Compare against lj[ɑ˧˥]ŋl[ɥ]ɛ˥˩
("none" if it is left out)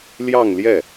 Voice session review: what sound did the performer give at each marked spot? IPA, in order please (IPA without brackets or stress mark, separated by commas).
ɑ˥˧, j